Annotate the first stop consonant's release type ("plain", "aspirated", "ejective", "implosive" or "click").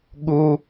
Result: implosive